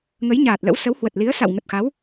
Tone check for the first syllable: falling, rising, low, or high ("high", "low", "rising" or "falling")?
rising